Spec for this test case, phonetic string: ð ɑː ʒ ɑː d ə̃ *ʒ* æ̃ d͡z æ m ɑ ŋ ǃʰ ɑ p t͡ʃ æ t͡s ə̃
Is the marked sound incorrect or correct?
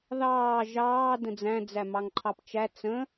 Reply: incorrect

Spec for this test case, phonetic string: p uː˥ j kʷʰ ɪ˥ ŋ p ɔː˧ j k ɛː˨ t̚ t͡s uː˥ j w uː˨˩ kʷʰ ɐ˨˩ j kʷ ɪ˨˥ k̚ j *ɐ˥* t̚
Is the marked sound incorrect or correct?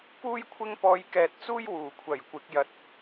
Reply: incorrect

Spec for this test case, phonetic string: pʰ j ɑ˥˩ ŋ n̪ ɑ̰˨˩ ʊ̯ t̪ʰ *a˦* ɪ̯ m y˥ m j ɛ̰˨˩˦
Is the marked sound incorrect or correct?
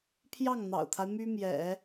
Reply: correct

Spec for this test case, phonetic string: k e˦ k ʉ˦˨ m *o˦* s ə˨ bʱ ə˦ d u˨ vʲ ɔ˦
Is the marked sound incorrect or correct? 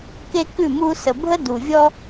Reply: incorrect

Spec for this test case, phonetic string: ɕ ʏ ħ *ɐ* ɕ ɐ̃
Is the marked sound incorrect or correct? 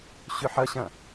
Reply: correct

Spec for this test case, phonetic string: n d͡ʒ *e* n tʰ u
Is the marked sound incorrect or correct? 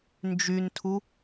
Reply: incorrect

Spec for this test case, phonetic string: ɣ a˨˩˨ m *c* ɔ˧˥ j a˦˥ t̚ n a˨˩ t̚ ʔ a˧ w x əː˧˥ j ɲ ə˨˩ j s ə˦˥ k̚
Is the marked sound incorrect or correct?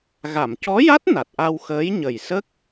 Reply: correct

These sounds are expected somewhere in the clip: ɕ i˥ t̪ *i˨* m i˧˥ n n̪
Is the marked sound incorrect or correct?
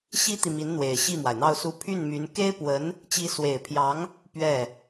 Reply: correct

